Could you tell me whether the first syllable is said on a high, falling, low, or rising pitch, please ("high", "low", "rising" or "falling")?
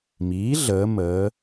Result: rising